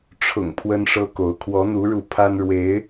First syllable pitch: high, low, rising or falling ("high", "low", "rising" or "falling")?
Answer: low